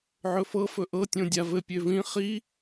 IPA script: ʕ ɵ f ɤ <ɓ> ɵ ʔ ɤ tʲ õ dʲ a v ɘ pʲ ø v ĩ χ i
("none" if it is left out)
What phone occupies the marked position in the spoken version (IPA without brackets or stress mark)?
f